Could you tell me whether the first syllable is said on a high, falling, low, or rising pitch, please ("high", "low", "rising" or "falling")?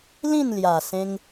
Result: falling